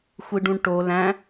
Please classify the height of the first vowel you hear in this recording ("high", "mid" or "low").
high